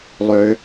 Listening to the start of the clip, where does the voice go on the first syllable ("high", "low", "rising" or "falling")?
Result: low